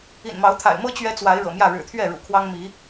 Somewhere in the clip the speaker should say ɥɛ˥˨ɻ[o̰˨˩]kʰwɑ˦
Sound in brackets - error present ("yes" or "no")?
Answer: yes